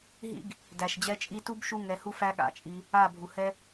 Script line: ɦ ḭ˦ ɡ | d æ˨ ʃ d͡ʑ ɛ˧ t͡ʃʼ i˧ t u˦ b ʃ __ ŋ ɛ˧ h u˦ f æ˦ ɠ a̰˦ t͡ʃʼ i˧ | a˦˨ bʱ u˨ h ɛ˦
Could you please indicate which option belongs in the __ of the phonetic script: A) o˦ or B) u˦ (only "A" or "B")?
B